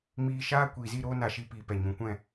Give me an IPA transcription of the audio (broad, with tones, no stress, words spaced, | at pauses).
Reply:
miː˧ʃaː˦ kʷiː˨zi˦˨ɾoː˦ na˧ʃi˧piː˨pɛ˨ ɲũ˨kʷɛ̃˦˨